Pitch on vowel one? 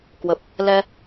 low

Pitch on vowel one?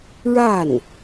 falling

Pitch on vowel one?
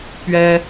high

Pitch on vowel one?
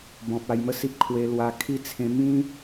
low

